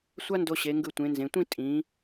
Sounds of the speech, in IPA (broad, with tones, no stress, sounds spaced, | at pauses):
sʷ a˥ n d o˧ ɕ e˩˧ ŋ ɡ ɯ˧˩ tʷ ẽ˩˧ n z ẽ˩˧ tʷ ĩ˥˧ tʼ ĩ˩˧